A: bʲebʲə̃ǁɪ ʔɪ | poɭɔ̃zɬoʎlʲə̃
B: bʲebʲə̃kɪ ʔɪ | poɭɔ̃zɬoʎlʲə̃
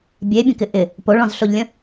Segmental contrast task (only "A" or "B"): B